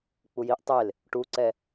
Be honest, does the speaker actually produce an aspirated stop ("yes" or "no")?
no